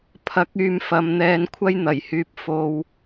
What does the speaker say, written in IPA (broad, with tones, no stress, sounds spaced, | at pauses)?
pʰ ɐ˨˥ k̚ yː˨˧ m f ɐ˨ m n̪ ɛː˧ n kʷʰ ɐ˥ j n̪ ɐ˨˩ j h yː˨ p̚ f o˨ w